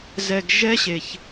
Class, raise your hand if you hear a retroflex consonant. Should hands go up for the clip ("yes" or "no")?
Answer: no